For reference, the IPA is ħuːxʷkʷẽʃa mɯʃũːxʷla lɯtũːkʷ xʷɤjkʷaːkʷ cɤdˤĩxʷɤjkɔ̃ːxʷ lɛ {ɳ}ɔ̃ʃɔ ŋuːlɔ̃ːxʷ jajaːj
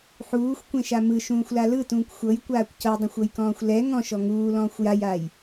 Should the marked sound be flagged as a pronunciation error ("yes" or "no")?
yes